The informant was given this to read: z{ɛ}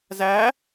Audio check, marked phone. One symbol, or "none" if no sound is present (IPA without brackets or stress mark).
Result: æ